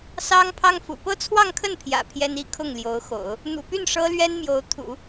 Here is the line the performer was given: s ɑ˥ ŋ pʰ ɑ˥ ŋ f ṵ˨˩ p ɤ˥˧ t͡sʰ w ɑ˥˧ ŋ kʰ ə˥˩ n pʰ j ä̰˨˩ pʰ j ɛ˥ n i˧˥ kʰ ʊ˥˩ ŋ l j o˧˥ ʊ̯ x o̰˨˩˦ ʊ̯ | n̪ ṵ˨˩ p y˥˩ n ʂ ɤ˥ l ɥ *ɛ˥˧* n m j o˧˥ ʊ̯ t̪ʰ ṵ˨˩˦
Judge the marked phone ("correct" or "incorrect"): incorrect